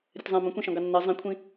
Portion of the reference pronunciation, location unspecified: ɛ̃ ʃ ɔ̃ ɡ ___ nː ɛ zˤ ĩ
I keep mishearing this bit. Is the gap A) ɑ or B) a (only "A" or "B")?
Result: A